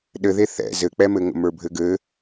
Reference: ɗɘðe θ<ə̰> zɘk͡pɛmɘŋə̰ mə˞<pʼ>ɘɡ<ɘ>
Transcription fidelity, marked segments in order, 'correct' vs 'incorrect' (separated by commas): incorrect, incorrect, correct